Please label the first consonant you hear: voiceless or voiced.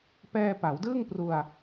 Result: voiceless